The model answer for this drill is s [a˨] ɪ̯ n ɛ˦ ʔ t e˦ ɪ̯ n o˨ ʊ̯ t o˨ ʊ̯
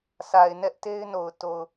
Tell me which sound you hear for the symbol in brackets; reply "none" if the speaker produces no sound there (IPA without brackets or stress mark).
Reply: a˨